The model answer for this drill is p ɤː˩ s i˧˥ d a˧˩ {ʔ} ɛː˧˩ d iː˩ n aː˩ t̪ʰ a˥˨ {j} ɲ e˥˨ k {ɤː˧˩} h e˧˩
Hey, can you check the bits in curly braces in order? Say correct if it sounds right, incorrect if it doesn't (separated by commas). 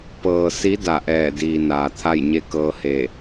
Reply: correct, correct, incorrect